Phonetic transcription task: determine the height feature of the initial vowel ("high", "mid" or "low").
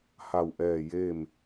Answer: low